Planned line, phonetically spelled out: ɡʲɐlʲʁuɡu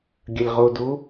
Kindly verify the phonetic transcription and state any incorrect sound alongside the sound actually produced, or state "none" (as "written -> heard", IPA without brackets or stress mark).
ɡ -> d